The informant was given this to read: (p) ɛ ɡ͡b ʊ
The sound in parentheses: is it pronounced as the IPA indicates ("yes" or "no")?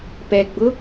yes